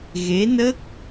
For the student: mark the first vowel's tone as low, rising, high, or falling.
rising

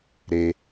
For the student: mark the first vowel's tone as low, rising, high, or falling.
low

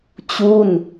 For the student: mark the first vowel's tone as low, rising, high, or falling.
falling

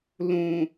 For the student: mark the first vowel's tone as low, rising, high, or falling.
low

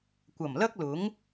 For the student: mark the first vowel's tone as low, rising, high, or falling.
low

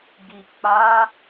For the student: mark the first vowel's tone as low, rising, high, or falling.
low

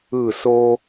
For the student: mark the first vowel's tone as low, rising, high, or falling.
falling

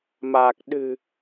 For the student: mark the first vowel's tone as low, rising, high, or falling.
low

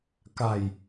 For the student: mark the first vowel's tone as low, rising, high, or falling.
low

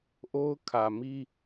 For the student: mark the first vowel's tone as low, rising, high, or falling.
high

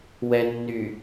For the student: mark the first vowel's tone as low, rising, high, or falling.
low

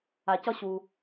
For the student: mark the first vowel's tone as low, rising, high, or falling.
low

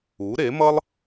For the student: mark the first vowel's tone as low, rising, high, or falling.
rising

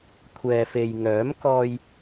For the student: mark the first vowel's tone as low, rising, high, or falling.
low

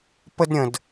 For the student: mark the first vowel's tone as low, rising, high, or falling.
high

